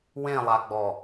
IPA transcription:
w ẽ lˠ a ɡ͡b ɔ

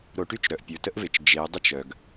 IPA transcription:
ɾ o˨˦ ʈ y˦ t͡ʃ ɾ œ˨ ʔ pʲ o˨ t ə˦ ʔ v ɪ˨ t͡ʃ d͡ʒ ɪ˨˦ ʊ̯ dˤ ə˦ t͡ʃ œ˨ ɡ

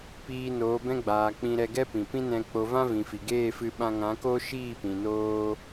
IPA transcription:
p iː˧ n oː˨˦ b ɛ̃˦ ɡ͡b aː˨ k͡p ĩ˧ ɾ ɛ˧ ɡ ɛ˦ p ĩ˨ p ĩ˦ n ɛ̃˧ k͡p o˧ v ã˦ v ĩ˨ f i˨ ɡ eː˦˨ f ɨ˧ ɓ ã˧ ŋ ã˨˦ k o˦ ʃ iː˦˨ p ĩ˨ n oː˦

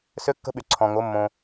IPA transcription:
s ø˧˥ kː ə̤˧˥ ɓ y˩ ǀʰ ɔ̃˩ ŋ o˩˧ mː õ˩

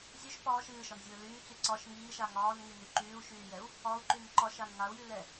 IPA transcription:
zʲ ɵ ʃ p ɒː ʃ ɨː ʃ ɒ n zʲ ɵː l yː t͡s y ǀ ɒ ʃ ŋ iː ʃ a ŋ ɒː n ŋ y n y ǃ yː u̯ ʃ yː j ɛ u̯ | ɒ u̯ ǃ y n ǃ ɒ ʃ a n ŋ a u̯ j y l ɛ

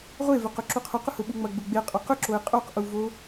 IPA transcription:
ʁʷ e v ʏ q ʊ ǁ u qʰ ʊ q ʊ h ʊ ɓ u ŋ͡m ɐ ɡ͡b ʊ ɡ͡b e qʼ œ q ʏ ǁ o e̯ qʼ o q ʔ u v o

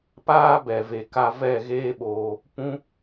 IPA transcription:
p aː˦ b ɛ˨ v e˨ k a˧ v ɛ˦˨ ɣ eː˦ ɓ oː˧ | p ũ˦

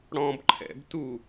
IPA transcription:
ɽ ɔ̃ b ǃʰ ɛ̰ b t u

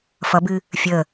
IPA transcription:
f ʌ b ɨ | fʲ ə

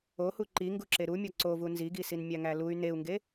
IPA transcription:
o h u ǃ i ŋ ɡ u ǁ e ɾ u mʲ ɒ ǀ o v u n z i ɡ i s i n mʲ æ ŋ æ l u y̯ n e u̯ ŋ ɡ e

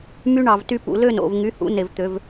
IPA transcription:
m y˦ ɳ ɑ˨ v t y˦ p ṵ˨ l ø˦˨ n o̰˦˨ v ŋ y˨˦ h ṵ˨˦ n e˨ v t̪ ø˨˦ v

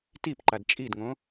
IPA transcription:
t i p ǃ a d t͡ʃʼ i d ŋ õ

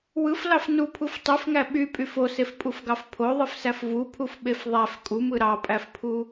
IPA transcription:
w ɯ f l ɑ f n u pʰ u f tˤ y f ŋ æ ɓ y pʼ y f o s e f pʼ u f ɡ ɑ f pʰ o ðˤ ɯ f s æ f v u pʰ u f ɓ e f ðˤ æ f kʼ u m ɯ ɾ ɑ pʼ æ f pʰ u

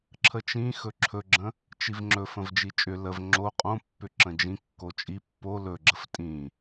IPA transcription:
ǁʰ ə t͡ʃ ĩ x ɵ ǁʰ ɵ ɡ͡ǁ ə̃ | t͡ʃ i v ŋ͡ǁ ɵ f ə̃ v d͡ʒ i t͡ʃʼ ʏ l ə v ŋ͡ǁ o qʼ õ pː ʏ ǁ ə̃ d͡ʒ ĩ kː o t͡ʃʼ i pː o l ɵ ɡ͡ǁ ə f tʼ ĩ

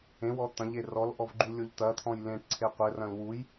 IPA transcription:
ẽ w ɔ t̪ ɐ̃ ʎ e r ɔ l ʔ ɔ v ɡ͡ǃ u lʲ o ʎ t̪ ɐ t̪ʰ ɔ̃ j l ẽ ʈ ǀʰ e qʷ ɘ r ɐ̃ l w u j

